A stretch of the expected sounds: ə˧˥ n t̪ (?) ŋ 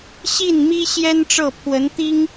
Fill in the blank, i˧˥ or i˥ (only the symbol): i˥